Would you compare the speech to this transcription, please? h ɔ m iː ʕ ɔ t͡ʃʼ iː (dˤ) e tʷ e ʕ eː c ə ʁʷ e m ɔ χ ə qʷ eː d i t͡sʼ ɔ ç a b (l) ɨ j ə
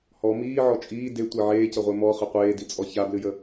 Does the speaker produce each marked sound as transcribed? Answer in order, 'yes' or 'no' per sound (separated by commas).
no, yes